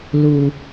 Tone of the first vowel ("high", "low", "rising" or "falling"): low